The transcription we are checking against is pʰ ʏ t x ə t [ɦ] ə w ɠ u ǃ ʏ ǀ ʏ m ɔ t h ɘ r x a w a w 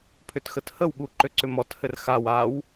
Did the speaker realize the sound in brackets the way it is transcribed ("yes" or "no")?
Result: no